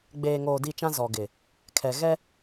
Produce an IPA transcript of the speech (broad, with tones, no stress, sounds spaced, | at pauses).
ɡ͡b eː˨ ŋ oː˨ d i˦˨ t͡ʃ ã˦ z ɔ˨ ɡ ɪ˨ | kʰ ɛ˨ ɣ ɛ˦